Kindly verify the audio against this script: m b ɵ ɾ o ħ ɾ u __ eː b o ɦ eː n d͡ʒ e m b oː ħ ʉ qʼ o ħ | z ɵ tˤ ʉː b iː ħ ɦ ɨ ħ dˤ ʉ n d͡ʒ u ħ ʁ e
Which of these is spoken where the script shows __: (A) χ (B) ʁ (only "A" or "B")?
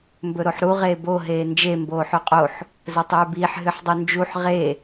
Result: B